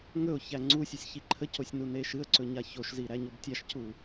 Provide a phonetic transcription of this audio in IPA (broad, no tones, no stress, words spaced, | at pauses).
ŋɵʊ̯ çæŋ͡ǀusʲɨsʲ çiǃʰəcosʲ nuneʃɨə̯ǀɵ ɲaçoʃzi ɾæɲobtʲaʃcu